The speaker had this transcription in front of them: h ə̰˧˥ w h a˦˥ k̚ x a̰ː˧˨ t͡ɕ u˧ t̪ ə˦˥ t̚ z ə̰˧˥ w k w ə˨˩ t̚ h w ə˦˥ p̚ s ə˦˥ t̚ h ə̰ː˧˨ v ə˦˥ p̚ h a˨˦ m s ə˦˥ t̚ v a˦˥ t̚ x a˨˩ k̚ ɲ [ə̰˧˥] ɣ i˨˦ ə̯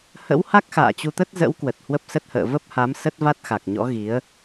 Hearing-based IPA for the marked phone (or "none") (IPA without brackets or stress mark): ɔ̰˧˥